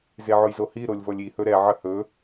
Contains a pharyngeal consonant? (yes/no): yes